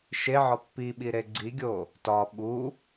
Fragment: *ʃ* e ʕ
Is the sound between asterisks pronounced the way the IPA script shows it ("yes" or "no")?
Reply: yes